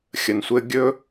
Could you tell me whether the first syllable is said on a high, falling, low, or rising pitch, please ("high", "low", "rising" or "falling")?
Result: low